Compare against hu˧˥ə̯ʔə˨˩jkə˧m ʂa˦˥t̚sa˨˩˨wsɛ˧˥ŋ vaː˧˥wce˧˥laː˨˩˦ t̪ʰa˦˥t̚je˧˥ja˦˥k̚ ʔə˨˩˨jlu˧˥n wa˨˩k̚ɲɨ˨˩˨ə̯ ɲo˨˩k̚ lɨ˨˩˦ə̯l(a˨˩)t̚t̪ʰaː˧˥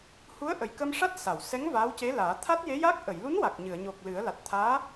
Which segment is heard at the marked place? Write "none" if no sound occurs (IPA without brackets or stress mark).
a˨˩